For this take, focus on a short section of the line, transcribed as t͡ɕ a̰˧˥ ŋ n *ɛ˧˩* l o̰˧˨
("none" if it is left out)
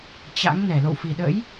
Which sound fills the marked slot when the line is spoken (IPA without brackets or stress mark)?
ɛ˧˩